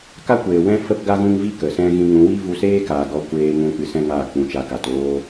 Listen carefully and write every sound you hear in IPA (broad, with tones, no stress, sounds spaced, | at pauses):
k a˦ kʷ eː˨ w ɛ̃˦ f ə˦ p ɡ a˦ ɣ ũ˦ ŋ v i˦ k ə˨ s ɛ̃˦ ɣ ĩ˧ ŋ ũ˨˦ w i˦ v u˧ s eː˦ k aː˨ ɡ ɔ˧ kʷ eː˧ ŋ ũ˧ k͡p ɨ˧ s ɛ̃˦ ŋ aː˦˨ k͡p ũ˧ t͡ʃ a˧ k a˨ t oː˦